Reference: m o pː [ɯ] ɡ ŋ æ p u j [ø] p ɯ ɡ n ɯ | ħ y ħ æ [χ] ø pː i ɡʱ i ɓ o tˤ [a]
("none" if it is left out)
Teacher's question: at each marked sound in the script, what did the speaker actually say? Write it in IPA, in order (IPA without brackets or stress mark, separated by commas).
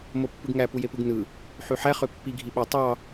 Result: ɯ, e, χ, ɑ